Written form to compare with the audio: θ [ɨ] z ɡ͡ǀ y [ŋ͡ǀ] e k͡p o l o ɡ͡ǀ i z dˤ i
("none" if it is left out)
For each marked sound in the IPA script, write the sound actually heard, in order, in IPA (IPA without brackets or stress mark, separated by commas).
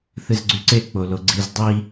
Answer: ɨ, ǀ